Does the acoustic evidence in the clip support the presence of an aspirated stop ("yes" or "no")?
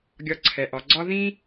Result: yes